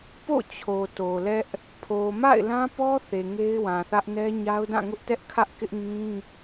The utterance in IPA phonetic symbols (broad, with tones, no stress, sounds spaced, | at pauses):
p o̰˦˨ t͡ɕʰ o˨ t o˨ l ɛ˦ ʔ | pʰ o˨ m a̰˦˨ ɪ̯ l ã˦ p ɔ˦ θ e˨ ŋ e˦ ɪ̯ w ã˨ θ ä˦ ʔ n ɛ˦ ɲ a˦ ʊ̯ d ã˦˨ ŋ ʊ˦ ʔ t ɛ˦ ʔ kʰ ä˦ ʔ k ɪ˦ ʔ ŋ ĩ˦